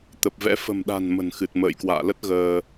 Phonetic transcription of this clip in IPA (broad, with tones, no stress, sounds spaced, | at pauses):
t̪ ə˨˩ p̚ v ɛ̰˧˥ f ə̤˨˩ m ɗ a̤˨˩ n m ə̤˨˩ n x ɨ˨˩ t̚ m ə̰ː˧˨ j k w a̰ː˧˨ l ə˦˥ t̚ ɣ əː˧